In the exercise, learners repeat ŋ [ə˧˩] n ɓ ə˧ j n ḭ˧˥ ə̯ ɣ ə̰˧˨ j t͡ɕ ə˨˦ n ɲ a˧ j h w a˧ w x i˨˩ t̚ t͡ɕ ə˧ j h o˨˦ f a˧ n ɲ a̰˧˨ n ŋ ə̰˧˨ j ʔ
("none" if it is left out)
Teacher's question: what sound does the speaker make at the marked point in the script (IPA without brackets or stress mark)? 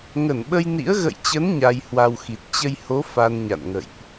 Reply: ə˧˩